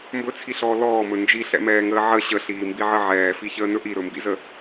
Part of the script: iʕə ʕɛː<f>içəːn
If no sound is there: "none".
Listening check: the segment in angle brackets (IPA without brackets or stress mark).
f